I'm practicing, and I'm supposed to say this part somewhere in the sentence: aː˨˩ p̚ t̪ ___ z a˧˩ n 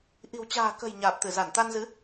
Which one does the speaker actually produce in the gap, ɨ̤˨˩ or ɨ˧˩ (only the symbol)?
ɨ˧˩